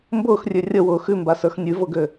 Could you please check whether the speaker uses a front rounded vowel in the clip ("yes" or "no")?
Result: yes